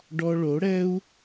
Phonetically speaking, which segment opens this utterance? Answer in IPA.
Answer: ɖ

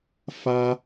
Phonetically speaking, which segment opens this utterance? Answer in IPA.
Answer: f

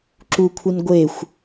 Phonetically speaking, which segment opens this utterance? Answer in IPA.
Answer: ǁ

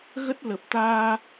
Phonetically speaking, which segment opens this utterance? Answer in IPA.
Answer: ɣ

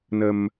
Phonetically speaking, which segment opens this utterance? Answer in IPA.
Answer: n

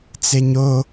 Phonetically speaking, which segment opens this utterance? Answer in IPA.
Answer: t͡s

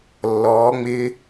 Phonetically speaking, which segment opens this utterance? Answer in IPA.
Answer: lː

